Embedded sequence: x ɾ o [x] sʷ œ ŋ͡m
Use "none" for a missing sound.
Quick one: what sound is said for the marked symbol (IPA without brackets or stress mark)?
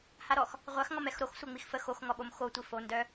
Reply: x